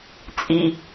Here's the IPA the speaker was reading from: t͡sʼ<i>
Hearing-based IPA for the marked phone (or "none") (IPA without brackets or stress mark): i